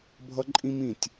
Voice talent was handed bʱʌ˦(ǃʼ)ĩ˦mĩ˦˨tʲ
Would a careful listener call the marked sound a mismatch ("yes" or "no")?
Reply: no